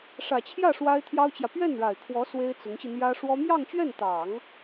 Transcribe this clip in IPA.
ʂ ä˨˩ t͡ɕʰ j ä˥˩ ʂ w a˥ ɪ̯ t̪ʰ j ɑ˥ ʊ̯ t͡ɕ j ä˨ p ɥ ɛ˥˩ n ɻ a˨˩ ɪ̯ kʰ w ɔ˧˥ s w e˥ ɪ̯ t͡s ʊ˧˥ ŋ ɕ i˧ n̪ j ä˥ ʂ w ɔ˥ m j ɑ˥˧ ŋ t͡ɕ ɥ ɛ˥˩ n t̪ ɑ˨˩˦ ŋ

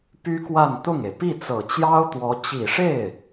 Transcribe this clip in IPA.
p y˥ k w a˥˧ n t̪ ʊ˥˩ ŋ e˩ ɪ̯ p i˥˩ t͡s ɤ˨˩ t͡ɕ j ɑ˥ ʊ̯ t̪ w ɔ˧˥ t͡ɕ i˨˩ ʂ e˥˩ ɪ̯

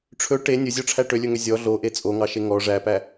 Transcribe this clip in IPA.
ʈ͡ʂʰ ɵ ʈ e nʲ ɵ zʲ ɔ ʈ͡ʂʰ æ ʈ ø lʲ ɵ ŋ ø zʲ ɔ ɮ o ʔ e t͡sʼ o ŋ ɑ ʃ e ŋ ɔ ʐ æ p æ

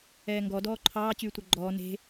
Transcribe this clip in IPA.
ɛː ŋ ɡ ɔ d ɔː ǃʰ ɑː t͡ɕ yː tʷ ɛ ɡ͡ǃ ɔː n e̤

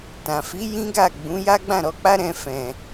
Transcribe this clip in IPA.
t ã˨ f i˨˦ j ĩ˦ ɡ a˦˨ ɡ͡b ũ˨˦ j a˦ ɡ͡b ã˦˨ ɾ ɔ˨˦ k͡p a˦ ɾ ɛ̃˦ f ɛ̃˧

